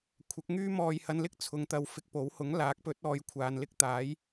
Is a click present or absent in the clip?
absent